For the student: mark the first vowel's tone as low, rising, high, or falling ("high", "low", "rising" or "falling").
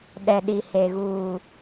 low